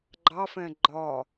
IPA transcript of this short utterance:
ɡ͡ǃ ɑ f ɛ̃ ɡ͡ǃ ɒ

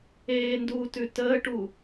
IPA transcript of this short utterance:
eː n d uː t ʉ t əː ʈ u

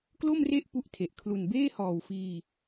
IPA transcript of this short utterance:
k l o˥˩ m r e˥˩ ʔ p u˥˩ ʔ tʰ e˨˩ ʔ kʰ l u˨˩ n b eː˥˩ h ɔː˨˩ w f iː˧

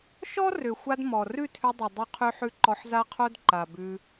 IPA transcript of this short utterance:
ʃ ɔ˦ r ʏ˨ xʷ a˧ d m ɔ˨ r ʉ˦˨ tʰ ʏ˧ dˤ ʉ˨ dˤ o˧ qʰ ʉ˧ ħ ʉ˧ ǃ ɔ˧ ħ z a˦ qʰ o˦ d ǃ a˨ b ʉ˧

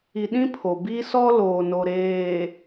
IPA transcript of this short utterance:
i˨ ɗ ĩ˦ pʰ o˨ b iː˦ s ɔ˦ l oː˨ n o˨ ɾ eː˨

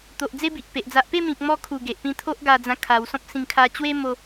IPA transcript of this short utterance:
t̪ o˨ ʔ d͡z e˦ b i˨ ʔ p e˨ ʔ d͡z a˨ ʔ p e˥˧ m ĩ˨ k̚ m ɔ˧ kʰ u˨˩ ɡ e˨ ʔ p ĩ˧ t̪ʰ o˦ ʔ ɡ a˧ d͡z ã˧ kʰ a˧ w s ɔ̃˦ p̚ s ĩ˧ ŋ kʰ a˧ t͡ɕ w e˦ m o˦

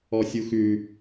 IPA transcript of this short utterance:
ɔ sʲ u x ʉ

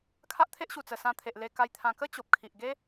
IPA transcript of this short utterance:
kʰ a˦ ʔ t̪ʰ e˦ ʔ ɕ u˨˩ t͡s ə˨˩ s ã˧ t̪ʰ e˨ ʔ l e˧ k a˧ j t̪ʰ ã˧ k ə˦ t͡ɕ o˨ p̚ kʰ i˨ ʔ ɡ e˦

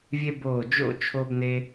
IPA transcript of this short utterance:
vʲ e˥ b oː˧˩ d͡ʒ o̰˥˧ t͡ʃʰ o˥ b n e˥

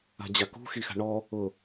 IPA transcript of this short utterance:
a̤ d͡ʑ a k ṳ x i x a̤ ɳ ɔ | ʊ

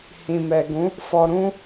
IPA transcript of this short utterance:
h ĩ˨ m ɛ˨ ɡ ũ˨˦ | f ɔ˧ ɾ ũ˦

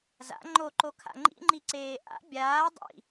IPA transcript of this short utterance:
z a̰ ŋ͡ǃ o ǃ o kʰ a̰ ŋ͡ǃ ḭ ŋ͡ǃ i ǀ eː ʔ a̰ bʲ aː dˤ ḭ

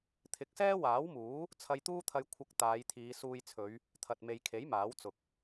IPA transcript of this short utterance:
t̪ʰ ɪ˨˥ k̚ s ɛː˥ w aː˨˥ w m uː˨˥ | t͡sʰ ɐ˧ j t̪ uː˥ t̪ʰ ɐ˧ j kʷʰ ɐ˧ k̚ t̪ aː˨˧ j t̪ʰ iː˨˧ s uː˧ j t͡sʰ ɵ˨˧ ɥ | t̪ʰ ɐ˨ t̚ m e˨ j kʰ e˨˥ j m aː˨˥ w t͡s ʊ˨ k̚

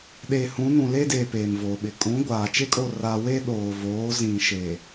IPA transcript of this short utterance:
ɗ e˨ h ũ˨˦ n ũ˨ l e˦ d eː˨ p eː˨ m v oː˨ ɓ ɪ˨ kʼ ũ˨˦ ɡʷ aː˨ t͡ʃ e˦ kʼ o˦˨ r a˦ w e˦ ɗ oː˨ v oː˨˦ z ĩ˨ ʃ e˨

